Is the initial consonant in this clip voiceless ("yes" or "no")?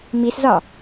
no